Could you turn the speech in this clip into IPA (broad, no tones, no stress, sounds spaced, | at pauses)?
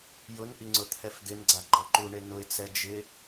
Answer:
j ʊ n ʔ i ŋ͡ǀ ʊ t̪ʰ ɛ f d̪ ɪ n ɡ͡ǀ a ɡ͡ǃ ɔ ǃ u ɳ e n ʊ ɪ̯ t͡s ɛ d͡ʒ ɪ